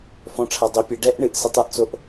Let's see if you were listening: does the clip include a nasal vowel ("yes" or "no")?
yes